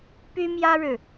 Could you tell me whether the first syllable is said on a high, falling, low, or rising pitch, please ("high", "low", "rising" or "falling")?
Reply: high